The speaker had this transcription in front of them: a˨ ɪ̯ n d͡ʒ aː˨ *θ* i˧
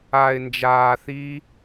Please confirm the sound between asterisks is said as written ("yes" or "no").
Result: yes